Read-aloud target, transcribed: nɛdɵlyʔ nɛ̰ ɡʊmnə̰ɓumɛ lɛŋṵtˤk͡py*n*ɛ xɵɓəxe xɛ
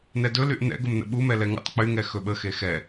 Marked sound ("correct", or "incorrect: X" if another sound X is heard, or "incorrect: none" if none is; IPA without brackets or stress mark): incorrect: ŋ